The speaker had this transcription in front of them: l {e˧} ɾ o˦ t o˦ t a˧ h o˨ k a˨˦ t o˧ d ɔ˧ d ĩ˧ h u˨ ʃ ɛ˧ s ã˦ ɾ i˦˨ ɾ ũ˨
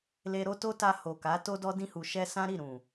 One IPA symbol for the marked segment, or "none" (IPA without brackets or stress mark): e˧